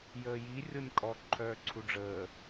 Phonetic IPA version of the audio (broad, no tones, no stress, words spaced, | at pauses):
jəːji rʲonʲkʼɔ ǃʰœːǀʰuɖ͡ʐəː